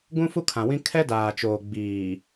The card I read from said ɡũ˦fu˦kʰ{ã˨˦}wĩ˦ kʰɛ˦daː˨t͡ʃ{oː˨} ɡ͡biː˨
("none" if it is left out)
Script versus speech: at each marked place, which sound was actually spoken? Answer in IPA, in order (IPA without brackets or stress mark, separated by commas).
ã˨, oː˨